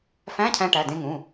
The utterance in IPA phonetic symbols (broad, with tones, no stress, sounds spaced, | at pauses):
f æ̃˧˥˧ cʰ æ̃˧ ʈ æ˩˧˩ d ẽ˧ ŋ ũ˩˧˩